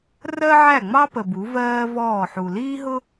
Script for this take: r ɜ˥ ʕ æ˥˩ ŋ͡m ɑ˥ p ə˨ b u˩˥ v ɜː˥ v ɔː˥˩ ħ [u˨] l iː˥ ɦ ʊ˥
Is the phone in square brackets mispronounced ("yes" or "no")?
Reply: no